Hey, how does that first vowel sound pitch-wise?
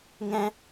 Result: high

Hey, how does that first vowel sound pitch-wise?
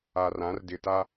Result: low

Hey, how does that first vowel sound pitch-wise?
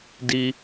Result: low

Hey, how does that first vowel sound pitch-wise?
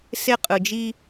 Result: high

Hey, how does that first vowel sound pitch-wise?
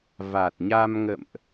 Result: low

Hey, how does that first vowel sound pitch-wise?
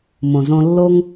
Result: low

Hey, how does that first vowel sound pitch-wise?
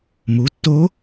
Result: rising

